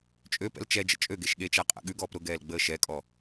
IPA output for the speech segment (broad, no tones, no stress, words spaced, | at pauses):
t͡ʃʼøpɛ̰l t͡ʃɛd͡ʒə̰ t͡ʃʼøɡeʃ ɠet͡ʃaqʼa̰ ɠʉɡɔːp ɾʊɡɛːlɡ͡bəː ʃɛkʼɔ